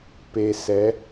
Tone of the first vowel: low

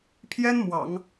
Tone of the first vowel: high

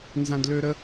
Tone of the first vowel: high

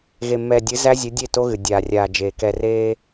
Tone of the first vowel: low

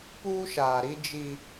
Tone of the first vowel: high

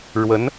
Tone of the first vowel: rising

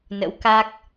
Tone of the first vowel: rising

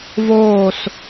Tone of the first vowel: falling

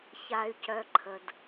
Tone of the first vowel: low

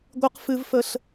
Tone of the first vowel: high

